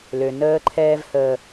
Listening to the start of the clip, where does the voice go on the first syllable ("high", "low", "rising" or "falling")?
low